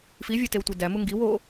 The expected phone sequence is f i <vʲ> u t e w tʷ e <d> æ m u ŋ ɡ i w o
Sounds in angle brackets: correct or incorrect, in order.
correct, correct

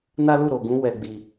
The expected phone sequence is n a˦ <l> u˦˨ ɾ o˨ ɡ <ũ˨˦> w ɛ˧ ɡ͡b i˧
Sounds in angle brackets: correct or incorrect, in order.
correct, correct

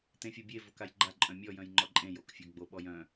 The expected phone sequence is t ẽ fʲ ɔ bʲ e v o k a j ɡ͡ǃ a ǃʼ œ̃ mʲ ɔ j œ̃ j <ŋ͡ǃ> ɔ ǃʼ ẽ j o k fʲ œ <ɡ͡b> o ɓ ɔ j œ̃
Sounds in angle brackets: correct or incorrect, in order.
correct, correct

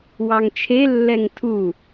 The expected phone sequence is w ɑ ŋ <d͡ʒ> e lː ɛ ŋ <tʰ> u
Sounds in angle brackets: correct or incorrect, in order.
incorrect, correct

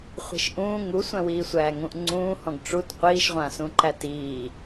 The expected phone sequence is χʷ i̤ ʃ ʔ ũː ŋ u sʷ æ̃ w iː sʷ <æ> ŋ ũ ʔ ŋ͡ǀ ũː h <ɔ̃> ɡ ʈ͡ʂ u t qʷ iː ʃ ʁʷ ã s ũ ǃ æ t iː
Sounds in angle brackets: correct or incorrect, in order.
incorrect, correct

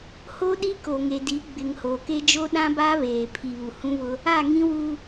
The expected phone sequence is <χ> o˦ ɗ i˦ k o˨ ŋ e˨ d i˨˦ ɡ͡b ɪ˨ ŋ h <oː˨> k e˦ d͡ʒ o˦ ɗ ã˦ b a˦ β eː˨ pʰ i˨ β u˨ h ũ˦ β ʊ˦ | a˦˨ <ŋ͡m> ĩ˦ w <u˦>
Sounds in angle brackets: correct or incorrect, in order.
incorrect, correct, incorrect, correct

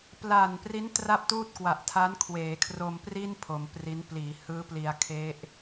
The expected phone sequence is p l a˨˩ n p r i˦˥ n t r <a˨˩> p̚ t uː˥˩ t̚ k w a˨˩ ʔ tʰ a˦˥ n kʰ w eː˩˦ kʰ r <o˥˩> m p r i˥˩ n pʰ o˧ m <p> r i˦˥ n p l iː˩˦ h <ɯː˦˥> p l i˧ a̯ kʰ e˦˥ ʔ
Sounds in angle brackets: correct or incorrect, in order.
incorrect, incorrect, correct, correct

